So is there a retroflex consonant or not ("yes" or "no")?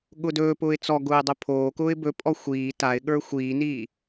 no